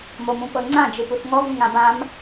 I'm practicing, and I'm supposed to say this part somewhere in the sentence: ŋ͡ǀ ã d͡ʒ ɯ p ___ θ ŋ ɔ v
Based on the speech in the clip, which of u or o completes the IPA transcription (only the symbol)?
u